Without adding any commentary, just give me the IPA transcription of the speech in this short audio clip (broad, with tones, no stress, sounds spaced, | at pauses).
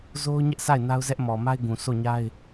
z o˦ ʊ̯ ɲ ɛ˦ ʔ s a˦˨ ɪ̯ n a˦ ʊ̯ z ɛ˦ ʔ m ɔ˨ m a˦ ɪ̯ ɡ ũ˨ sʰ o˦˨ ɲ a˦ ɪ̯